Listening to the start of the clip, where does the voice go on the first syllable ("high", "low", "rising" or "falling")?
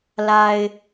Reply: low